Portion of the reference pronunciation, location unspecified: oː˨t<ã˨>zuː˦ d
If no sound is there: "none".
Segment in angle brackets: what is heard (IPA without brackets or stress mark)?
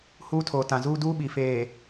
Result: ã˨